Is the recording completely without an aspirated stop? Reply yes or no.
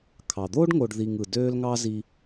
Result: no